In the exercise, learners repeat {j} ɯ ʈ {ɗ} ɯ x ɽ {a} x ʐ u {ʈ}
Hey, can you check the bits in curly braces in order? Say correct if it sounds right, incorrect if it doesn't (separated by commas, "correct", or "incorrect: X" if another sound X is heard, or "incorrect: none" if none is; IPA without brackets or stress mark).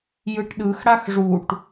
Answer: correct, correct, correct, correct